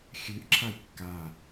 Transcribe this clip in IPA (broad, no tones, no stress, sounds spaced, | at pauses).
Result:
xʲ ʉ ʔ ǁʰ a j kː a